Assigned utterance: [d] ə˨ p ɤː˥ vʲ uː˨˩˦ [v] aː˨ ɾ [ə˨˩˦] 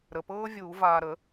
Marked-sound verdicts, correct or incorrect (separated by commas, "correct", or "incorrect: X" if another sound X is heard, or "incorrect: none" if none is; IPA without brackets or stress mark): incorrect: ɾ, correct, correct